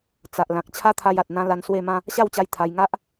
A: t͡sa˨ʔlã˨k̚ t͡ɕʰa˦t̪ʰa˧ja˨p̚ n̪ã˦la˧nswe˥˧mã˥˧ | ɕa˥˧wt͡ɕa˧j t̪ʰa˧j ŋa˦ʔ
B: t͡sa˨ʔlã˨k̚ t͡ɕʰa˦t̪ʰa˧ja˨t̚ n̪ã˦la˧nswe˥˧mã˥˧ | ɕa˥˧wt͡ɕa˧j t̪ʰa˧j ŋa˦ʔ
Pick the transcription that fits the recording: B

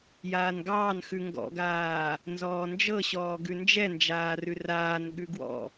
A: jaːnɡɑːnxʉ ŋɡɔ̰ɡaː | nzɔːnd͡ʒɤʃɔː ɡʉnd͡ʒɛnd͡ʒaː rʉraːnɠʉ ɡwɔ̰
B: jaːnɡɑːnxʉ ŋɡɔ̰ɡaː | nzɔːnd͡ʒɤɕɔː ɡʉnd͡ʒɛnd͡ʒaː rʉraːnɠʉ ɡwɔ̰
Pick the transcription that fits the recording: B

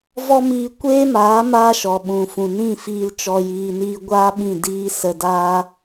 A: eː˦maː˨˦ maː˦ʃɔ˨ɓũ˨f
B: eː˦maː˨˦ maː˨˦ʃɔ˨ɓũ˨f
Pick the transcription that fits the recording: A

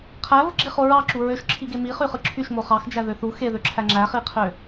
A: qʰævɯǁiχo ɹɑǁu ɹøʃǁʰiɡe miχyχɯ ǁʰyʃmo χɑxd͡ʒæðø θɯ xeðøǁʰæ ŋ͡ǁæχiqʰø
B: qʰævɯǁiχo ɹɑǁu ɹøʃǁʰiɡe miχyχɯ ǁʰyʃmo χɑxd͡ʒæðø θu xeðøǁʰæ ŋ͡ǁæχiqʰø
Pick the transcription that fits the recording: B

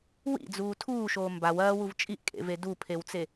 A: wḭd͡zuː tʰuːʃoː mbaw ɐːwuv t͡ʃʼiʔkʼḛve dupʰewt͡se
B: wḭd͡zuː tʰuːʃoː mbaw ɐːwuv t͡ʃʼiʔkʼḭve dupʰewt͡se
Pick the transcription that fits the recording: A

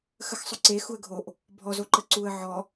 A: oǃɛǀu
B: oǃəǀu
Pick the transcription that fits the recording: B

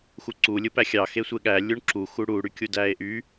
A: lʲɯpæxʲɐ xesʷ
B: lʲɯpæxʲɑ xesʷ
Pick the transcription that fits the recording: B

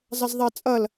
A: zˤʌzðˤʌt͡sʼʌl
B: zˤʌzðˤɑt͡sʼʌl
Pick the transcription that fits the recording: B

